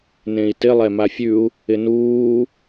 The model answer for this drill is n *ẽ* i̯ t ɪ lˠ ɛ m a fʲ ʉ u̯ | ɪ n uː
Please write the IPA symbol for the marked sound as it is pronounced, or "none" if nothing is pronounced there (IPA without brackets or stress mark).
ẽ